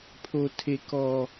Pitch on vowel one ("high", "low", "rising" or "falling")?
high